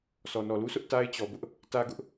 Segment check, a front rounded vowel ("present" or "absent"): absent